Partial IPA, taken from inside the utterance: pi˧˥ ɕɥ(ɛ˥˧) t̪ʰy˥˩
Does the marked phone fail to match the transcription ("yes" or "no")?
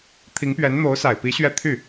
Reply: no